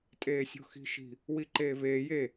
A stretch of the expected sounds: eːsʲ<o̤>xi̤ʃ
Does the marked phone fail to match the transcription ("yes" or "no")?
no